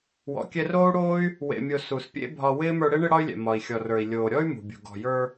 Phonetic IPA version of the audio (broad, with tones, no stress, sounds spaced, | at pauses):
w ɔ̰˨ kʲ ɛ˧ r oː˦ u̯ ɽ oː˦ y̯ | w ḛ˨ mʲ o˨ s u˨ s pʲ ḛ˦ bʱ ɒ˧ w ɪː˦ m ə˞˧ ɽ e˦ ɳ ɪ˧ ɽ ɒ˧ y̯ lʲ ɛ̰˨ m ɒ˨ i̯ xʲ ɔ˨ r ə˞˨ i̯ lʲ oː˨ ɾʲ ɔ˦ y̯ m ṳ˨ bʲ ṳ˨ ɡ ɔ̤˨ j ə˞˧